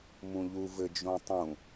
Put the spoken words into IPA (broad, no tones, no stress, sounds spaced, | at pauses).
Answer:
m ũ ʎ u v ɘ d͡ʒ õ tˤ ũ